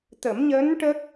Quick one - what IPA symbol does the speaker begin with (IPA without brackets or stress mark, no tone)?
t̪